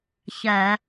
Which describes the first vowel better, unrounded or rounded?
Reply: unrounded